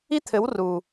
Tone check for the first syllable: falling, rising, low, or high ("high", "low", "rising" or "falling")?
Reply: high